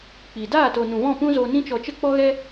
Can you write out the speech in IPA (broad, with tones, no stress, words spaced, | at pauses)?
k͡pi˨ daː˦˨to˨ nũ˨ vɔ̃˦˨pũ˦zo˧nĩ˦ t͡ʃɔ˨t͡ʃə˧ k͡pɔ˦ɣɛ˦